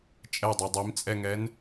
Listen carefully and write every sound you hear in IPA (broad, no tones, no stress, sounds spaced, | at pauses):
t͡ʃʼ ɛ dˤ i dˤ i m t͡sʼ ɛ ŋ ɛ n